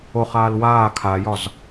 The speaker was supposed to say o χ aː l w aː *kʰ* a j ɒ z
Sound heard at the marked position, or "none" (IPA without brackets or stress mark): kʰ